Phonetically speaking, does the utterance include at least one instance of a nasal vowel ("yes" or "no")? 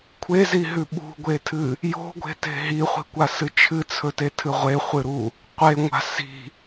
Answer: no